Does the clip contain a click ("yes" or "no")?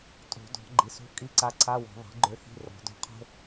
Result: yes